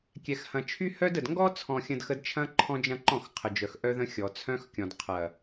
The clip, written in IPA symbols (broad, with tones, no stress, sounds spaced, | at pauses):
kʲ ɛ˨ x h ɐ̃˨ t͡ʃʰ y˦ h œ˦ d ə˨ d ŋ ɡ ɔ˦ t͡sʰ ɔ̃˨ xʲ ə̃˨ d x ə˦ d t͡ʃʰ ɐ̃˦ ǃʰ ɔ̃˦ d͡ʒ ɐ̃˦ ǃ ɔ̃˦˨ x qʰ ə˨ d͡ʒ œ˨ x ʔ œ˦ ð ə̃˦ xʲ ɔ˨ t͡sʰ œ̃˦ x kʲ ɔ̃˨ d qʰ ɐ˨